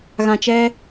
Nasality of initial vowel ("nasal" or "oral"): nasal